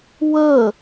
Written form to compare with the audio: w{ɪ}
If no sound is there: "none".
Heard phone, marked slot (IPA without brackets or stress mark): ə